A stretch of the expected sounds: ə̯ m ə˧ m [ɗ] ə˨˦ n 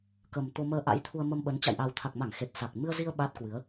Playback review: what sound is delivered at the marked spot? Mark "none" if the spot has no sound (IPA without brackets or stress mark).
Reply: ɓ